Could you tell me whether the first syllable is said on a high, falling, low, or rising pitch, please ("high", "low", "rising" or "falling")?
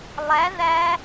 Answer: rising